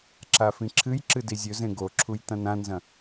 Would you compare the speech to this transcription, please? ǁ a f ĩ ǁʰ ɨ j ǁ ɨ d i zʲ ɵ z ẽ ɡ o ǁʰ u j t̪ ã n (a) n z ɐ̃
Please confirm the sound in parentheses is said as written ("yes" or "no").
no